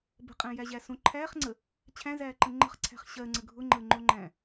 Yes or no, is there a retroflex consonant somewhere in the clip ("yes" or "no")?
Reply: no